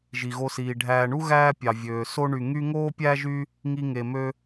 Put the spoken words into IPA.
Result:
ʒ i˩ ɣ o˨ s iː˩ ɖʱ æː˨ ɳ u˥ ɣ æː˦ pʲ ɑ˩ vʲ øː˩ s o˦ ɳ y˨ ŋ y˦ ŋ oː˥ pʲ æː˥ ʒ y˦ | ŋ i˨ ŋ e˩ m ø˨

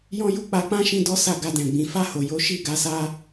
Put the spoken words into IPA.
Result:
j ɔ̃˦ j u˦ k͡p a˧ k͡p ã˦ ʃ ĩ˧ d ɔ˦ s a˦˨ ɡ a˧ d ɛ̃˨ ɡ͡b ĩ˨ f a˧ h o˨ j o˨˦ ʃ i˦˨ ɡ a˧ s a˦

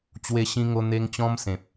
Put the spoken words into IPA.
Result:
t͡ɕ w e˧ ɕ ĩ˧ ŋ o˧ n̪ e˧ ŋ t͡ɕ ɔ̃˧ m s ẽ˨ p̚

